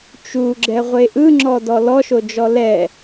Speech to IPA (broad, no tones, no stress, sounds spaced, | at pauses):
t͡ʃ u ɡ͡ǁ ɛ ʁʷ e ʔ ɯ ŋ͡ǁ ɔ d ɔ l ɔ ʃ o d͡ʒ ɔ l ɛ